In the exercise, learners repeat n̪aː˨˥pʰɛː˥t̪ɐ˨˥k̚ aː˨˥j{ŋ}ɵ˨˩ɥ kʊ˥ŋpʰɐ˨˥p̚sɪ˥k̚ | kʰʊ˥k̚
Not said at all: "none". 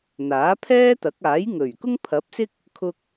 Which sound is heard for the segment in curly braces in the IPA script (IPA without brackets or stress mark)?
ŋ